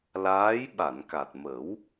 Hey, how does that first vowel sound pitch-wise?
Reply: rising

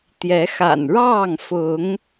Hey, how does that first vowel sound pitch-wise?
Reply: rising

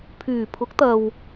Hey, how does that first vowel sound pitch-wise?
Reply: low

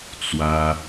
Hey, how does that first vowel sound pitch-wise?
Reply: high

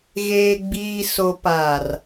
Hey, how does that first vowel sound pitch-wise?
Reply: low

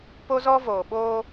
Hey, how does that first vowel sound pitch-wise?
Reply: high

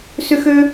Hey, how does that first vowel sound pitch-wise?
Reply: high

